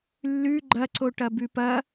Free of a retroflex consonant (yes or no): no